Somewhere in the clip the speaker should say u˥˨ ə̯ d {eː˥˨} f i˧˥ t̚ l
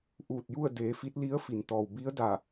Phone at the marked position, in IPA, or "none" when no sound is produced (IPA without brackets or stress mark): eː˩˧